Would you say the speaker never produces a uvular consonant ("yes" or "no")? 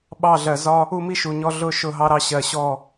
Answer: yes